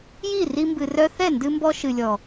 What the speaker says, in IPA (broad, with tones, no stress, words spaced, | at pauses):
ji˦˨ri˧mbɨ˨ rœ˧θɛ˦˨ ndɨ˧mbɔ˧ ʃɨ˨lʲɔ˨